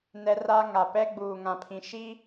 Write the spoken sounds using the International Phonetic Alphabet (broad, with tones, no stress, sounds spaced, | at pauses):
n ɛ˦ r a˦ ŋ a˨ p ɛ˦ ɡ͡b uː˨ ŋ ã˨ pʰ ĩ˨ ʃ i˦